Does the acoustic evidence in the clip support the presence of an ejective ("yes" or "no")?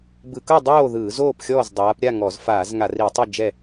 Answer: no